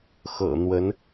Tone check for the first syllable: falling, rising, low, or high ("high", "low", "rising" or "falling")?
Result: low